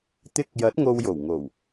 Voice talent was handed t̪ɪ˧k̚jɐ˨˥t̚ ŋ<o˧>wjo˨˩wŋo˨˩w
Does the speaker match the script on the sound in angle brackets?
yes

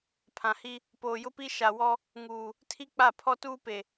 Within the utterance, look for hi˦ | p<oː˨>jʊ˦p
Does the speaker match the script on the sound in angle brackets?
yes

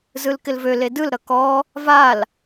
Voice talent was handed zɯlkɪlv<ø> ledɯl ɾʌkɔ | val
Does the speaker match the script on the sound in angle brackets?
yes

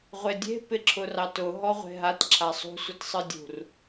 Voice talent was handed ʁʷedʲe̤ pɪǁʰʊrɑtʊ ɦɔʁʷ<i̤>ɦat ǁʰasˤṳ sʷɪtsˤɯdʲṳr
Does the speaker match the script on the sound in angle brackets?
no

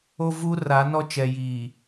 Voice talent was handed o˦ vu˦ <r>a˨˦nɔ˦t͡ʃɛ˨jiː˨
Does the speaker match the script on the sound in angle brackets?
yes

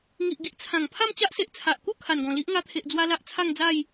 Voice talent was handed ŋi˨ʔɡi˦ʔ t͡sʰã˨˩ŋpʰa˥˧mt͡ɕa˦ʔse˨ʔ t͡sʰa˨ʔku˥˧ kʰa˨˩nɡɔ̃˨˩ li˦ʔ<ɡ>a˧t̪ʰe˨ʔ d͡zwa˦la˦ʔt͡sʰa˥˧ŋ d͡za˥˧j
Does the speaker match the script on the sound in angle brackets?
no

